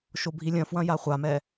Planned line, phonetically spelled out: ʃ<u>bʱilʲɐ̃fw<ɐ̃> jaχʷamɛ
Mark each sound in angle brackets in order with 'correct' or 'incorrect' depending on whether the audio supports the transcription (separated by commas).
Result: incorrect, correct